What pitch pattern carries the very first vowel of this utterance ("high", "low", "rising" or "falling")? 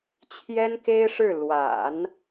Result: high